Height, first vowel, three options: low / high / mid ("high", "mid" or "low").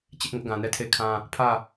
high